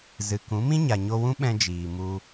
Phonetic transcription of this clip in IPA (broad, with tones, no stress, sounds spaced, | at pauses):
z ɨ˨ k ũ˨˦ m ĩ˦ ɲ a˨ ɲ o˧ w ũ˦ ɓ ɛ̃˧ d͡ʒ iː˨ m u˧